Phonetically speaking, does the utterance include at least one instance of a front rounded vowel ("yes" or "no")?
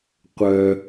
yes